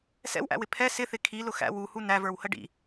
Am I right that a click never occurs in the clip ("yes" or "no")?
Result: yes